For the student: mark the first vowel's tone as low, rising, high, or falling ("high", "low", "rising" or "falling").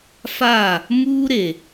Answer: falling